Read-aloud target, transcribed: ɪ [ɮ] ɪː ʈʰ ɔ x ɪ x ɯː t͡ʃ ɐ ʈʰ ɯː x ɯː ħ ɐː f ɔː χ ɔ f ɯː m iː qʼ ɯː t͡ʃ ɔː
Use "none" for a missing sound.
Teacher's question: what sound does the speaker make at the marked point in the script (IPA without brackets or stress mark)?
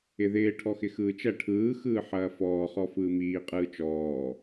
ð